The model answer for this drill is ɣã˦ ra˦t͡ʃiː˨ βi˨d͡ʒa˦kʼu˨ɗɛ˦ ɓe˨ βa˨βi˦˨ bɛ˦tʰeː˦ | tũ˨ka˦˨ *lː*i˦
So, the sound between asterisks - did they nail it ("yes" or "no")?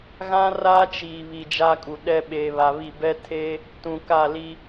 no